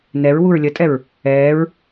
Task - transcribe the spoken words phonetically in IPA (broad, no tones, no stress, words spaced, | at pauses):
nɛɹ wuɹlʲətʼɛɹ | ɛːɹ